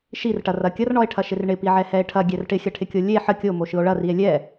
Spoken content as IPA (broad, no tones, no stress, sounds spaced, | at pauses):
ʃ i r ʈ ɐ r ɐ kʲ ɐ r ɳ ɔ e̯ ʈʰ ɐ ʃ ɪ r ɳ ɪ p i ʕ ɛ h ɛ e̯ ʈʰ ɐ ɡʲ ɛ r ʈ ɪ xʲ ɐ ʈʰ ɪ kʲ o lʲ e ħ ə kʲ o m o ʃ ɯ o̯ ɭ ɐ r i e̯ lʲ ɛ